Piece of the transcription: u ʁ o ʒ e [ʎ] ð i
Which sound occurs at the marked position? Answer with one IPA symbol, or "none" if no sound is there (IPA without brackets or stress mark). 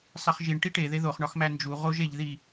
ʎ